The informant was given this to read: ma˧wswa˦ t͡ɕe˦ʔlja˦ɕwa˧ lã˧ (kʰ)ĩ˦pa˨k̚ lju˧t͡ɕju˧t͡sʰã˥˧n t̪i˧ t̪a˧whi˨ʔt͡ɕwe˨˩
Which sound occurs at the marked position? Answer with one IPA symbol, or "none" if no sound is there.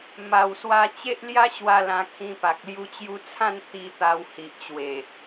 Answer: kʰ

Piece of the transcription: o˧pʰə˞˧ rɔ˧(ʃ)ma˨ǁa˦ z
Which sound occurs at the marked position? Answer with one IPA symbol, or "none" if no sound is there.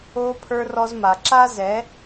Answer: z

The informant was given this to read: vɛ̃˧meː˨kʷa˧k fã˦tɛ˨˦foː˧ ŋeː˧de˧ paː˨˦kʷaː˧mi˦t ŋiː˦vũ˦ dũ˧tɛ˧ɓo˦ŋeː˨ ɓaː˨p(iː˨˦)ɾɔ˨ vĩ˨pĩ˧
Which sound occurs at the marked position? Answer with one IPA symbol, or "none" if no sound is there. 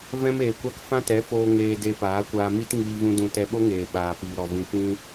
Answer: iː˨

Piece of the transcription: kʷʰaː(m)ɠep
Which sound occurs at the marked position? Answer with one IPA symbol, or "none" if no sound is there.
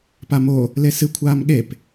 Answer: m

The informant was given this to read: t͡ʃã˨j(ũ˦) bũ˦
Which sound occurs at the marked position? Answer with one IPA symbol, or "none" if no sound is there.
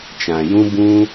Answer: ũ˦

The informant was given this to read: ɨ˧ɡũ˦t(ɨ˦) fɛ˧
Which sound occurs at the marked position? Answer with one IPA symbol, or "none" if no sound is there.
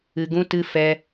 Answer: ɨ˦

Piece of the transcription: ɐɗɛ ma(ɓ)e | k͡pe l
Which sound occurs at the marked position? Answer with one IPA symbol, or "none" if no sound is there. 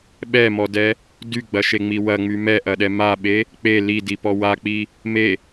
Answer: ɓ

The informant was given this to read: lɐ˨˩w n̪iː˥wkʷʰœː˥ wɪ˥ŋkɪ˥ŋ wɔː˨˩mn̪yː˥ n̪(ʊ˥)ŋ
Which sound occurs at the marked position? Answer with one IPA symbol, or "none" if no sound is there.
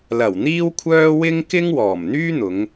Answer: ʊ˨˧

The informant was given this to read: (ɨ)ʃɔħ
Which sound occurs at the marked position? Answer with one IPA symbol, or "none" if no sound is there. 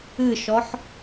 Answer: ɨ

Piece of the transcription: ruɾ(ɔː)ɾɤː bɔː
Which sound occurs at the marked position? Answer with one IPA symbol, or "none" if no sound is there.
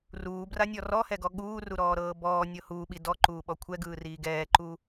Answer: ɔː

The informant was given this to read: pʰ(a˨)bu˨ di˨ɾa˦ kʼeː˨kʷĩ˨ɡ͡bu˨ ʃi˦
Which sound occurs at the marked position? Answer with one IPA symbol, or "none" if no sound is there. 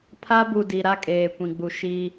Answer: a˦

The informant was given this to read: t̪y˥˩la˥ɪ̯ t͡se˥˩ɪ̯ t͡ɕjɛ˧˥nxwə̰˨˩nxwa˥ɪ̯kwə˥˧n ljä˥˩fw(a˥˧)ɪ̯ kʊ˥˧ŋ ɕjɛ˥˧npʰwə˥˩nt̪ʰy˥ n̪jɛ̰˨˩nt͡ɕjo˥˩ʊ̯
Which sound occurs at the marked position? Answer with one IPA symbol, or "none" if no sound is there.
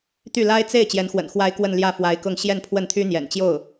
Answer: a˧˥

